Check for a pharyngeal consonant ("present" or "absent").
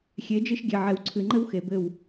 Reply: present